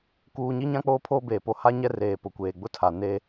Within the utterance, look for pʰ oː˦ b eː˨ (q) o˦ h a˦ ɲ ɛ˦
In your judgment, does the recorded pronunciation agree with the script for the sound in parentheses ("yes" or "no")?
no